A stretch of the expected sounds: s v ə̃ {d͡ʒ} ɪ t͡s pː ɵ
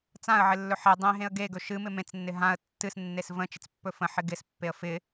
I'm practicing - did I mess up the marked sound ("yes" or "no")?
yes